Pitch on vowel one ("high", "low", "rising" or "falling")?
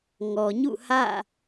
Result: low